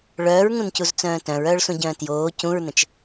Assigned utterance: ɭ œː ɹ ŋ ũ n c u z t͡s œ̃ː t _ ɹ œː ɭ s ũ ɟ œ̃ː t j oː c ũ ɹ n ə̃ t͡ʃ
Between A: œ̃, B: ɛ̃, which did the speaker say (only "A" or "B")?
A